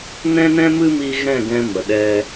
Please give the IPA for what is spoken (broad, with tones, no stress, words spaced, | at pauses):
nɛ̃˦nɛ̃˦mɨ˦mi˧ ɣɛ̃˦˨ɡɛ̃˧ mə˨ɗɛ˧